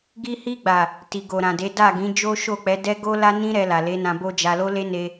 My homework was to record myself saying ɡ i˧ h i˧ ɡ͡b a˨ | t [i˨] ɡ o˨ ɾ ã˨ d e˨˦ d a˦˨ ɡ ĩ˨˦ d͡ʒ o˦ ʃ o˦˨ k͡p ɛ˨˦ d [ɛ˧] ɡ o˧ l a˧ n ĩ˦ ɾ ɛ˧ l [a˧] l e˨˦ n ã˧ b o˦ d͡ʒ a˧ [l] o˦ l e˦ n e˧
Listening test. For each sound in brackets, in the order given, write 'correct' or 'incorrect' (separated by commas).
correct, incorrect, incorrect, correct